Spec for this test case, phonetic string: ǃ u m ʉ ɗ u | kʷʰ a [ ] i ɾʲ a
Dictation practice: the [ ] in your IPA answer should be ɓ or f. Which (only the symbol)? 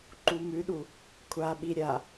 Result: ɓ